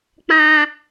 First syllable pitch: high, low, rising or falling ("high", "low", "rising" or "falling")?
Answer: high